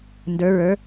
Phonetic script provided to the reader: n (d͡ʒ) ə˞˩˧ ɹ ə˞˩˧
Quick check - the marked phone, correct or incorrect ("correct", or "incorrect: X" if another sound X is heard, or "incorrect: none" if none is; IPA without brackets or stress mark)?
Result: incorrect: d